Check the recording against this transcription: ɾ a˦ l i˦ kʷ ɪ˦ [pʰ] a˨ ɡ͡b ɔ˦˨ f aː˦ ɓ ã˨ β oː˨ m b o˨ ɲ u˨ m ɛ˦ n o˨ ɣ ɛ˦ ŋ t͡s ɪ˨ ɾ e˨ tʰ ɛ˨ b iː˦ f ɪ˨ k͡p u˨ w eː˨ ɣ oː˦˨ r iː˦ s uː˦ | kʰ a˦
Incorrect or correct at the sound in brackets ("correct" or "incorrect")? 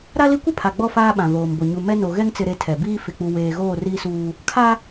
correct